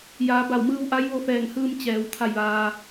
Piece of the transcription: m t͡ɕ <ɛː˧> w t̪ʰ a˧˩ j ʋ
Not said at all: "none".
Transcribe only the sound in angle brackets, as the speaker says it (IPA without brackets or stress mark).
ɛː˩